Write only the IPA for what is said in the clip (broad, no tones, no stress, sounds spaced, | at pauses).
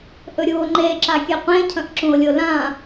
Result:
ʔ ɵ ɾʲ u o̯ ŋ͡ǃ e ǁ a kʲ e qʷ ẽ cʰ ɐ̃ ʔ ǁ ũ o̯ lʲ o l ã